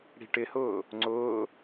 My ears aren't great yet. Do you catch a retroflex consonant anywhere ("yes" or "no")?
yes